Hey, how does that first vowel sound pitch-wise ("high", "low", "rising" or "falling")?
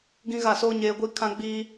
high